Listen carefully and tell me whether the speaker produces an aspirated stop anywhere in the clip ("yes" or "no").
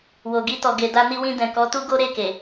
no